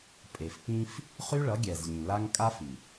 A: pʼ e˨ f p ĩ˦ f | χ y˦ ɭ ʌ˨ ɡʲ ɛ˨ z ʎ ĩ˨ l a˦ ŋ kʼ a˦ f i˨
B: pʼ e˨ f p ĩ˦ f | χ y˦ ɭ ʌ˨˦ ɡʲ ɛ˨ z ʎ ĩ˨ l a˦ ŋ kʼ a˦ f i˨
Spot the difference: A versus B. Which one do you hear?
B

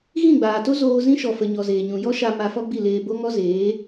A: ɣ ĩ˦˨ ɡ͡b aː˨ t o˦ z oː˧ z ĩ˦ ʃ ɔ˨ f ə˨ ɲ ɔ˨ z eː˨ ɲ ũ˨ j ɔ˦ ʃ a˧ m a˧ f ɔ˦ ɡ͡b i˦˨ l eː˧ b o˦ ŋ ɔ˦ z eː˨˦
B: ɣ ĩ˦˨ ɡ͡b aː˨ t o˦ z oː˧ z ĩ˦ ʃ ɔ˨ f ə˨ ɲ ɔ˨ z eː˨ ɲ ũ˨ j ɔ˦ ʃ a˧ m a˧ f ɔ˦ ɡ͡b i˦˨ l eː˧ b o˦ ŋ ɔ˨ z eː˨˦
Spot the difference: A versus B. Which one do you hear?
A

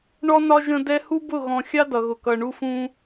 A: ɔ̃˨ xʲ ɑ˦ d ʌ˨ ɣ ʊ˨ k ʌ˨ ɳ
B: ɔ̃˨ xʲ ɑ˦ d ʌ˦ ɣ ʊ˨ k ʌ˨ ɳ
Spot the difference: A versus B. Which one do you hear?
A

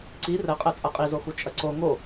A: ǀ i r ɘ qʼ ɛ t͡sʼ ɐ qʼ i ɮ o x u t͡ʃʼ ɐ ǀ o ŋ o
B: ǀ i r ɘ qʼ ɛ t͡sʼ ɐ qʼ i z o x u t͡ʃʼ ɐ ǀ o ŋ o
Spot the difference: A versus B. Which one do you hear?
B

